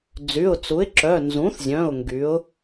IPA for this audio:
d͡z y˩˧˩ ʊ̯ t͡s u˩˥ ɪ̯ ǁ œ˩˧˩ n z ũ˩˥ θ zʲ œ̃˩˧˩ ʊ̯ ŋ ɡ y˩˥ ʊ̯

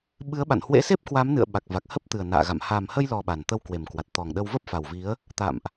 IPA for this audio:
ɓ ɨ˨˦ ə̯ ɓ a̰˧˨ n h w ḛ˧˥ s e˦˥ p̚ k w a˨˦ m n ɨ̰˧˨ ə̯ ɓ a˨˩ k̚ v a˨˩ k̚ h ə˦˥ p̚ t̪ ɨ˨˩ ə̯ n a̰ː˧˨ ɣ a̰˧˨ m h a˨˩ m h ə˧ j l ɔ˨˩ ɓ a˨˩ n t̪ ə˧ w k w e˨˩ m k w a˨˩ t̚ t̪ ɔ˨˩ ŋ ɗ ə˧ w v ə˦˥ p̚ f a˨˩ w v i˨˦ ə̯ | t̪ a̰˧˨ m ʔ

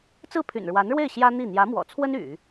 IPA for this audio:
t͡s ɹ̩˥˩ pʰ y̰˨˩ n ɻ w a˧˥ n ɻ w e˥˩ ɪ̯ ɕ j ä˥ n̪ i˥˩ n̪ j ä˧˥ m w ɔ̰˨˩ t͡sʰ w ə˥ n y̰˨˩˦

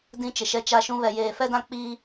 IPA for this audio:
d ĩ˦ t͡ʃ ɪ˨ ʃ ɛ˦ t͡ʃ a˦ ʃ ũ˦ β ɛ˨ j eː˨ f ɛ˦ d ã˦ k͡p i˦

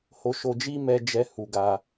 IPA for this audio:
h o˧ ʃ o˧ d͡ʒ i˦ m ɛ˧ d͡ʒ ɛ˧ h u˧ ɡ a˧

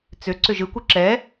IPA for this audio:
t͡s ʏ ǀ ʏ ʒ ɯ kʷ ɯ ǁ ɛ

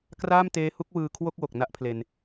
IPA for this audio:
k r aː˥˩ m t eː˦˥ h u˦˥ k̚ w ɯː˧ kʰ w o˥˩ k̚ w o˨˩ k̚ n a˥˩ ʔ pʰ l e˧ n

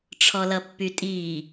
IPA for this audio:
ʈ͡ʂʰ ɔ l ʌ pː y tʼ iː

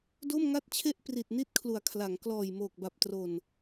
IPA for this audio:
d o˥˩ m ŋ a˥˩ t̚ t͡ɕʰ e˥˩ ʔ p r i˨˩ t̚ n i˥˩ t̚ kʰ l u˩˦ a̯ kʰ l a˩˦ ŋ k l ɔː˨˩ j m oː˨˩ k̚ b a˨˩ p̚ t r o˨˩ n

